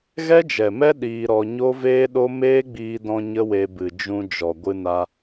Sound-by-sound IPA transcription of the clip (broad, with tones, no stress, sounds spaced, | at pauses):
ɣ ɛ˦ d͡ʒ ɛ˨ m ɛ˦ ɗ iː˧ ɾ ɔ˧ ɲ o˦ v eː˦ ɗ o˦ m eː˦ ɡ͡b iː˧ d ɔ̃˧ ɲ ə˦ w e˧ b ɨ˨ d͡ʒ ũ˧ d͡ʒ ɔ˨ ɡʷ ɨ˧ n a˧